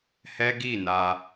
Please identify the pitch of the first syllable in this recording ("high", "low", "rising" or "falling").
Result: high